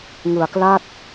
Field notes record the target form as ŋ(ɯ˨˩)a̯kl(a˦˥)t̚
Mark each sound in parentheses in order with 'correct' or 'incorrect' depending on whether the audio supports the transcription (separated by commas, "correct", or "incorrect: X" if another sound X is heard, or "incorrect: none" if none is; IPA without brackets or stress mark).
correct, incorrect: a˥˩